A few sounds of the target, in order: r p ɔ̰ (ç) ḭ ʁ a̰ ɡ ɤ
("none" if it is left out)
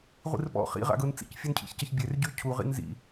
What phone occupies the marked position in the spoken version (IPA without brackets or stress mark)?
χ